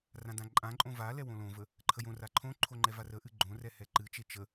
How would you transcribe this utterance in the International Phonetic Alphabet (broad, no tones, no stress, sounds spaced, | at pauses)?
r ã d ã ǃʼ ã ǃʼ õ v a l ɛ w õ l õ v ə | ǃʰ ə j õ r a ǃʰ õ ǃʰ o ŋ͡ǃ ɛ v a r ə ʔ ɨ ɡ͡ǃ õ r ɛ h ɛ ǃ ɨ t͡ʃ e t͡ʃ ə